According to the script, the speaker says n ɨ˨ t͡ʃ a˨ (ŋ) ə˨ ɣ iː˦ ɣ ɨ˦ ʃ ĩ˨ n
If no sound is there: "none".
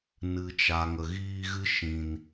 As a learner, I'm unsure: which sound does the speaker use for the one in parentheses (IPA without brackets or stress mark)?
ŋ